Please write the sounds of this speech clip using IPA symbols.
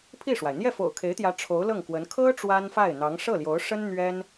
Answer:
pʰi˥˩ʂwa˩ɪ̯ n̪jɛ˥˩fo̰˨˩ʊ̯kʰe˧˥ɪ̯t̪jä˧˥ ʈ͡ʂʰo˧˥ʊ̯lɤ˥˩ŋkwə˧˥n kʰɤ˥ ʈ͡ʂwa˥nfa˥˩ɪ̯n̪ɑ˧˥ŋ ʂɤ˥˩ljo˧˥ʊ̯ʂə˥n n̪ɥɛ˥n

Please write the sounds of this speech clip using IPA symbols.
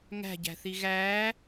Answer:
ŋæ̤ɟæ̤θi ɣæː

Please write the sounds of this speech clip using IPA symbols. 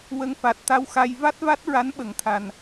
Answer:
wə˧ŋfa˨˩t̚ t̪a˧˥wxa˧j va˦˥t̚va˦˥t̚ɹa˧˥n ɓə˨˩˨ŋt̪ʰa˨˩n

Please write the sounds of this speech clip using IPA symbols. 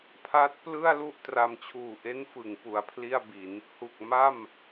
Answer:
pʰa˦˥t̚ plɯ˥˩a̯lu˥˩ʔ tra˧m t͡ɕʰuː˨˩ʔe˦˥n fɯ˩˦ŋ pu˨˩a̯pʰli˥˩a̯bi˩˦n | hu˨˩k̚ma˥˩m

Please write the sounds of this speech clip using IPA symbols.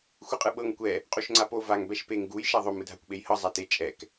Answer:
xʷɯqʼɯɓɤŋ kʷɛ | qʼuʃŋ͡ǀapo vaŋ bɛʃpeŋ ɡuj ʃaðˤom ɯdʱakʷɓejhɤ zˤate t͡ʃʼɛk

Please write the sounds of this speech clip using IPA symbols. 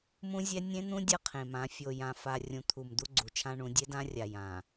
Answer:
mũ˦zʲɛ˦ nʲẽ˦n̪ũ˦ dʲʌ˦qʰẽ˨mã˨˦ fʲo˨jã˨ fa˨ rʲũ˨t̪ʰu˨m d̪u˦ɡ͡ǀu˨t͡ʃʰã˦ɳũ˨˦ dʲe˦dã˦rʲa˨ jã˨

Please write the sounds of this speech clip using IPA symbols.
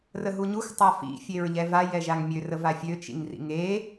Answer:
rəɦuɲux tˤafḭ fʲeɹʎɛva jɛʒaŋmʲø rəvafʲø t͡ʃḭŋrḭŋe

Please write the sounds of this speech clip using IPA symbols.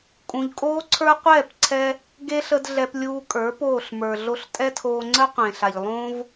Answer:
kʼũ˨ʎkʼoː˦ǀʰə˞˦ qʷɛː˦˨pǀʰɛ˧ | ɡe˧ ɬə˧d ɮɛ˧plʲuː˧kʼə˞˨˦ poː˦˨ɬmə˞˨ ɮo˧ɬtʼɛ˦tʰoː˧ ŋ͡ǀə˦qʷẽ˨ɬa˨ʎ lˠõ˦v

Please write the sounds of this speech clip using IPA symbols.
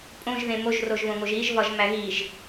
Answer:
pʼõʒðẽ moʒroʒβõŋoʒ iʒvɒʒmæ ɣiʒ

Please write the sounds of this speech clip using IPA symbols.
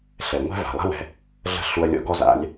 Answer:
ɬɛ˩ŋʷɛ̤˥ va̤˩lˠɛ̤˥wɛ̤˧ | ɮə̤˥ɬu˧ɐ̯lʲɔ̰˧˥ɡɔ˥ za̰˩˧lʲ

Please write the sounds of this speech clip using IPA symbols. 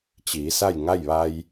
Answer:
t͡ɕiː˩˧sa˥˨jŋa˥˨jʋa˧j

